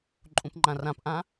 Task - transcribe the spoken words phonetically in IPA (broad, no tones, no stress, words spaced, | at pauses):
ǃʼũpŋ͡ǃãrãpʔã